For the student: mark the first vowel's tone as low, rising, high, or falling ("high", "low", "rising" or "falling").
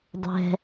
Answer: low